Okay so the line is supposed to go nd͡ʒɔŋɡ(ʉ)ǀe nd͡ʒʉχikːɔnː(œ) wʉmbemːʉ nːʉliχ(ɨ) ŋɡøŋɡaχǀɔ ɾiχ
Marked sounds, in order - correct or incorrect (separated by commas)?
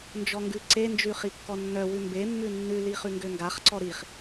correct, correct, incorrect